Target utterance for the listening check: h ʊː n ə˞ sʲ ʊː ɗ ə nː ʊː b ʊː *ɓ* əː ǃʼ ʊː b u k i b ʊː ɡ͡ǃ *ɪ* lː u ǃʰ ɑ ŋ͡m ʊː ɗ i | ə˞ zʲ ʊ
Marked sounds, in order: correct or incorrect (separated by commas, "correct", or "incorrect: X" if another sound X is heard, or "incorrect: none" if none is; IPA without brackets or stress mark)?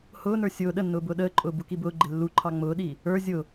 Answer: incorrect: ɗ, correct